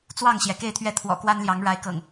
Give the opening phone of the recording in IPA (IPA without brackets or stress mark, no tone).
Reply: t͡s